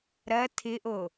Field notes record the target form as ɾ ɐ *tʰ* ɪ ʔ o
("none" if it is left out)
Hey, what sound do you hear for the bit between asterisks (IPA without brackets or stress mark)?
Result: tʰ